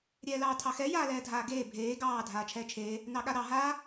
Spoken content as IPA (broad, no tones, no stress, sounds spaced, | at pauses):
ɾʲ ɛː l ɑː tʰ ɑ x ɛ j aː l ɛː dʱ aː ɡ eː bʱ eː ɡ ɑː dʱ aː t͡ʃʰ ɛː t͡ʃʰ eː | n ɑ ɠ a ɾ ɑ ɦ aː